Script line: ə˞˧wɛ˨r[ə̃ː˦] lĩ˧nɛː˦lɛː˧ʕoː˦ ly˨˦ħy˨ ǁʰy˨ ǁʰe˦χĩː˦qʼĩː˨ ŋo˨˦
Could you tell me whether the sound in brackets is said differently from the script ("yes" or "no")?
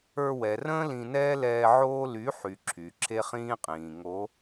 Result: no